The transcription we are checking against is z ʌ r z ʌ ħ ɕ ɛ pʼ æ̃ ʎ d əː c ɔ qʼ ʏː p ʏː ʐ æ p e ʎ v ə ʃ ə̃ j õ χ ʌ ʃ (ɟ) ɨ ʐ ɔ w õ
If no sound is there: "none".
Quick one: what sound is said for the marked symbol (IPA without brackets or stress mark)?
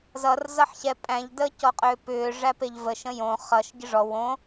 ɟ